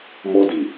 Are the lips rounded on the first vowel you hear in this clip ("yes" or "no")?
yes